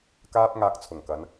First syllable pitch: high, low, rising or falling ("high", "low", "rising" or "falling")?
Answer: high